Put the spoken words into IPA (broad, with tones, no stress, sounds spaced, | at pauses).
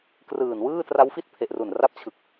k r ɯː˨˩ n w ɯː˥˩ t r a˦˥ w f i˥˩ t̚ pʰ e˨˩ ʔ r u˨˩ n r a˦˥ p̚ t͡ɕʰ ɯ˨˩ k̚